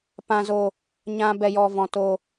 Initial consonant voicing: voiceless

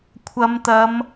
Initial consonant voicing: voiceless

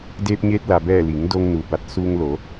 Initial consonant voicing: voiced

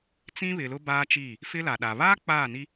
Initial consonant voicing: voiceless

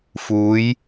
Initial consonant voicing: voiceless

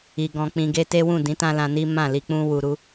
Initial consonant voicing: voiced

